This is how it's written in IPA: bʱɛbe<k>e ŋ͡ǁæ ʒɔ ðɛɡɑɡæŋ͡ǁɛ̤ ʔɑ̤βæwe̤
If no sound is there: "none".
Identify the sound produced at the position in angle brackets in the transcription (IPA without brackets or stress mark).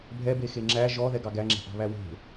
x